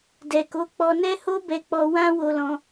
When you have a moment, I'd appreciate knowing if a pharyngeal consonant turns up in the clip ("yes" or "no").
no